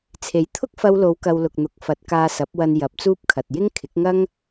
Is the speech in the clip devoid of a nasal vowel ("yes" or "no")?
yes